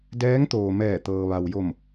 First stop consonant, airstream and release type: plain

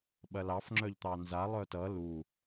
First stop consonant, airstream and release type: implosive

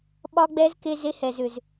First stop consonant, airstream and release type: implosive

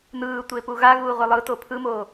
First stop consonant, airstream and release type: plain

